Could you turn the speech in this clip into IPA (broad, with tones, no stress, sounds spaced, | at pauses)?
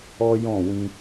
ɔ˦ j ɔ̃˦˨ w ĩ˧